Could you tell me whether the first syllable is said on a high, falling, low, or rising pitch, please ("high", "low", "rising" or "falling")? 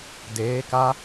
rising